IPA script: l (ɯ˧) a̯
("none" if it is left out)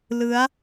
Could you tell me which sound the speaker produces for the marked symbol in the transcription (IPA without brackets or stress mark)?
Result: ɯ˦˥